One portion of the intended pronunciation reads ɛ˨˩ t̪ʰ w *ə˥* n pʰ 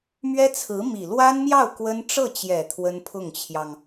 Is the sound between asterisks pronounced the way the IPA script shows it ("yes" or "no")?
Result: yes